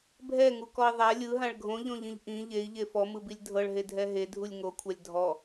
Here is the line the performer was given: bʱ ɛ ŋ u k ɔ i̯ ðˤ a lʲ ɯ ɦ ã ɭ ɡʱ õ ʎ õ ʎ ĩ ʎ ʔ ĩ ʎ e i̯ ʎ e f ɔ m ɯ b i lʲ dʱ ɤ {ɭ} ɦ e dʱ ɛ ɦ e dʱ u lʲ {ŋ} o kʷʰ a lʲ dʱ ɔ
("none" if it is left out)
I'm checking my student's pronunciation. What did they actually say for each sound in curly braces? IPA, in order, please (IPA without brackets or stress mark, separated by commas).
ɭ, ŋ